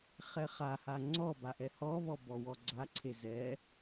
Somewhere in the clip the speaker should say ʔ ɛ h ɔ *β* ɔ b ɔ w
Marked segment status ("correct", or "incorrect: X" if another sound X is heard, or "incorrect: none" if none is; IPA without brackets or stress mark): correct